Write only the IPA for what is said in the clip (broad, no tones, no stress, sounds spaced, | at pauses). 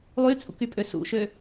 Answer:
lˠ y t͡sʼ ṵ k y pʼ ø s ṵ ʃ ø